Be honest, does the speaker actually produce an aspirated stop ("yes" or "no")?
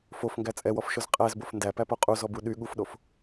no